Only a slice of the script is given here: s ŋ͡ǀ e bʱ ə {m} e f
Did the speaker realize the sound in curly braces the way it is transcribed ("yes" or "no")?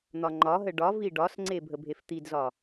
no